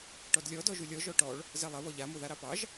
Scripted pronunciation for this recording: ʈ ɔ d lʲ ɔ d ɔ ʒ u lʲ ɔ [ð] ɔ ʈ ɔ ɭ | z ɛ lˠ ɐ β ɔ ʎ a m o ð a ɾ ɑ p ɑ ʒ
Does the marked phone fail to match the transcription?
yes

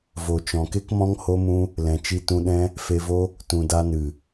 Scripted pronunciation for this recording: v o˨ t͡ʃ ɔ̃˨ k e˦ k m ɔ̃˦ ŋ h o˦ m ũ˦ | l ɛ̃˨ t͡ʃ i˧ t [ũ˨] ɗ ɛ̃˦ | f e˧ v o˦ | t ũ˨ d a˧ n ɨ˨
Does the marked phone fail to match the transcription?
yes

